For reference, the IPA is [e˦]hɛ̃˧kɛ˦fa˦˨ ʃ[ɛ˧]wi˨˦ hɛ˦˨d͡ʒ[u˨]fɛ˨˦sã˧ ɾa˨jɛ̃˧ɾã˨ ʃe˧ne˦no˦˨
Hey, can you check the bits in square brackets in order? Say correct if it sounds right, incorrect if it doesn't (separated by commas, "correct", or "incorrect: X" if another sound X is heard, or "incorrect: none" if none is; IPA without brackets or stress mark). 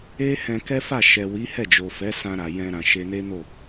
correct, incorrect: ɛ˨, incorrect: o˨